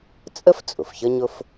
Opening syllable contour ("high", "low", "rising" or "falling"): high